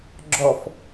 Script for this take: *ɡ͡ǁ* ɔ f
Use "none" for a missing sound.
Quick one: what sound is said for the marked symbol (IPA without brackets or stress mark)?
ɡ͡ǁ